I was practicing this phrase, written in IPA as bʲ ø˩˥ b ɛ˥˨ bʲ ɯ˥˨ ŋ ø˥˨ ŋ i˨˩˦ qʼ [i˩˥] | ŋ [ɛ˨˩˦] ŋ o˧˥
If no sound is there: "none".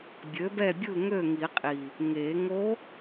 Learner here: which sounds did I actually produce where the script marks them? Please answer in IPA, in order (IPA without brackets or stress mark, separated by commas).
i˨˩, e˨˩˦